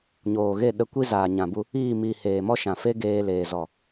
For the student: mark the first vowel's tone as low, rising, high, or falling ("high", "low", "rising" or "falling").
low